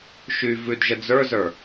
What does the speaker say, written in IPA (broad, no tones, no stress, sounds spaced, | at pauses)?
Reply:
ʃ y v ʉ d ʒ ə d͡z ə˞ z ə˞